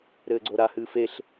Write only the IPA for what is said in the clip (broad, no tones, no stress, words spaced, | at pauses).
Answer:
ɾɘːɡ͡ǀoɾahɨːf eɬ